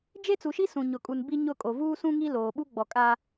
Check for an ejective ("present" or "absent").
present